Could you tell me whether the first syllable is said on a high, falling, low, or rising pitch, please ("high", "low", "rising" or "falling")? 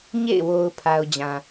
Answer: falling